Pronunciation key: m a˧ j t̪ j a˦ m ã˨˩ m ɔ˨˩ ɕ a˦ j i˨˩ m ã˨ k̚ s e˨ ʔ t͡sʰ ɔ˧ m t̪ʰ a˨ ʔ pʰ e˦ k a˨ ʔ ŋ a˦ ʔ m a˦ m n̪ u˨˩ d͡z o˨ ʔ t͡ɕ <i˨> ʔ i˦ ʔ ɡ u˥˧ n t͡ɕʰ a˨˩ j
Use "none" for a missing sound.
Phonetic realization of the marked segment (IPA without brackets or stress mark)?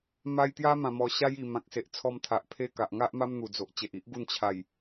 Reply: e˨